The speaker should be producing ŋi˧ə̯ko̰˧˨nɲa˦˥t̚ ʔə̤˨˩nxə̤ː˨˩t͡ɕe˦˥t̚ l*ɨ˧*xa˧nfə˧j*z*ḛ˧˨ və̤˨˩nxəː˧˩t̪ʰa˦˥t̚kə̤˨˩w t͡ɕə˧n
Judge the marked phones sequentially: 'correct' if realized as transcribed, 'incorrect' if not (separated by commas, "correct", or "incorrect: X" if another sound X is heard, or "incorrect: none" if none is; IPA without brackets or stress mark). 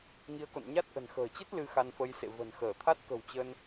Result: incorrect: ɨ˨˦, incorrect: s